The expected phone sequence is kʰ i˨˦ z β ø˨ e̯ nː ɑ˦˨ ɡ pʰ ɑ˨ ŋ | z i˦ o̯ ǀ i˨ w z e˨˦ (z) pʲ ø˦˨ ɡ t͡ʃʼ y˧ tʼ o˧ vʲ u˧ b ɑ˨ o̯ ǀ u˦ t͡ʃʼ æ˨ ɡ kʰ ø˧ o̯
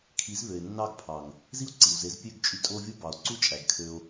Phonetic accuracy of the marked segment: correct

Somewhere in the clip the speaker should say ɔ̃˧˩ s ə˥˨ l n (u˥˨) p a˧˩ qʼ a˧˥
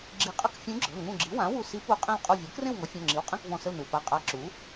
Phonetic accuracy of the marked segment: incorrect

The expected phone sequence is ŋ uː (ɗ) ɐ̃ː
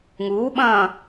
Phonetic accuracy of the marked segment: incorrect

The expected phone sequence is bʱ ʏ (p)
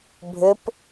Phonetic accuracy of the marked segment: correct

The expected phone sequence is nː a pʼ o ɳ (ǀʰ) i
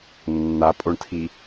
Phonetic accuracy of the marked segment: incorrect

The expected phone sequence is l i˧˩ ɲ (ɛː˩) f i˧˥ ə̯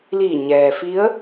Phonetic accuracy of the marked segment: correct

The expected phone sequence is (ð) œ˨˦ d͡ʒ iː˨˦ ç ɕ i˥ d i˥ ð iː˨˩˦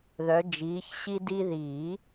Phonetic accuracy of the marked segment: correct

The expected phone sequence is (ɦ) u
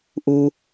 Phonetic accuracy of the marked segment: incorrect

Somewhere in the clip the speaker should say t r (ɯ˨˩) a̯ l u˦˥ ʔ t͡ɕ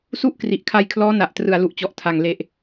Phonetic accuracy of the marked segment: correct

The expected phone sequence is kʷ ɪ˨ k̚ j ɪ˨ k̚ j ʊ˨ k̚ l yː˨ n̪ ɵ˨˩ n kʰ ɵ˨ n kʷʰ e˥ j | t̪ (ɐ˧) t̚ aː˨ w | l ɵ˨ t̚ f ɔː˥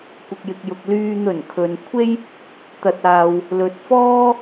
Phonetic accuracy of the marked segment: incorrect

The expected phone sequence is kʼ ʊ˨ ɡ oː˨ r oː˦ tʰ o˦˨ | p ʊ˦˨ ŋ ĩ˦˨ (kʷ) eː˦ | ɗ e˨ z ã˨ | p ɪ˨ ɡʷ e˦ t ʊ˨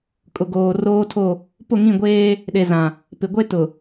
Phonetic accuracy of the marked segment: incorrect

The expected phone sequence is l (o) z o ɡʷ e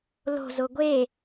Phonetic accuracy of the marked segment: incorrect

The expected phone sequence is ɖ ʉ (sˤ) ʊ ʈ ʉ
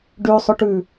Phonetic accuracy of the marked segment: correct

